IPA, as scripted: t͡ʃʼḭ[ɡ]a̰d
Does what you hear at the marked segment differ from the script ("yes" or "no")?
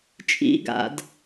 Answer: no